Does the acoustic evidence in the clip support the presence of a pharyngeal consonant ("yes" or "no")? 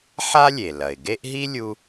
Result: yes